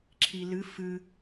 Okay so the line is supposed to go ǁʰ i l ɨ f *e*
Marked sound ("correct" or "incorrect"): incorrect